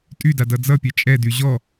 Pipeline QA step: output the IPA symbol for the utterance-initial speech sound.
tʼ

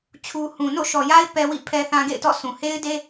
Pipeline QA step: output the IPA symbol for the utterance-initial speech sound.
t͡ɕʰ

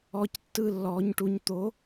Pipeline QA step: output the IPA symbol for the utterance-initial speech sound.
ɔː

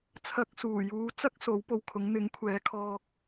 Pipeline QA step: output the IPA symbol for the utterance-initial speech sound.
t͡sʰ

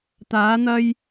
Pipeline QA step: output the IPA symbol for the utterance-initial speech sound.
t̪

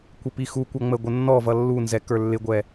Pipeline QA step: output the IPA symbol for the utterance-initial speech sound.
kʷ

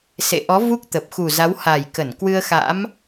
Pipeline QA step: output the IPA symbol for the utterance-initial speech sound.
s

